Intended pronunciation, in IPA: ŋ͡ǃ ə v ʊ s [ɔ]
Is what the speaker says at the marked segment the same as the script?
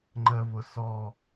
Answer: yes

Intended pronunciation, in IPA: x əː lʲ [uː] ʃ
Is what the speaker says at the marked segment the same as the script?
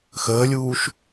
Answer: yes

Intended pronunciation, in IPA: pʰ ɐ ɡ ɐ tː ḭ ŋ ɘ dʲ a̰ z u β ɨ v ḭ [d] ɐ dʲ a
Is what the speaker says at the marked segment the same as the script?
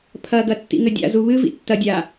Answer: no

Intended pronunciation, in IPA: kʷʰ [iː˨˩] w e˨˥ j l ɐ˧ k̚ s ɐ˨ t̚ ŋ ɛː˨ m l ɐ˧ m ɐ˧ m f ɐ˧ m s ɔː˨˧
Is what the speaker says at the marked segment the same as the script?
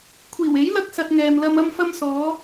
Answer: yes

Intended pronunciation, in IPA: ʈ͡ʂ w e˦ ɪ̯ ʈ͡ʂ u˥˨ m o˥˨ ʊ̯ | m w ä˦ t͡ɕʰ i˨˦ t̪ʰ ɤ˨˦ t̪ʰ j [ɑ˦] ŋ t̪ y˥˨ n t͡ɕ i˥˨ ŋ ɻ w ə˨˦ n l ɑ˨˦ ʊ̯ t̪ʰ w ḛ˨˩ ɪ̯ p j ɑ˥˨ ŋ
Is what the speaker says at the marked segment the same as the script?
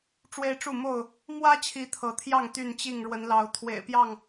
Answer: no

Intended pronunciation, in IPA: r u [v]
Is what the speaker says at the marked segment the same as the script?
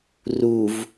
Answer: yes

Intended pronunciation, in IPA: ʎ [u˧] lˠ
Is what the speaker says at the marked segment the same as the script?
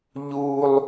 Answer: yes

